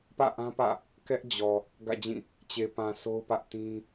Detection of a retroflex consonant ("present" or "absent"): absent